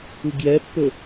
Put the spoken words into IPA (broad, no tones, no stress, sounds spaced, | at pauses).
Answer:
ɯ ɡ j ɛ pː ɵ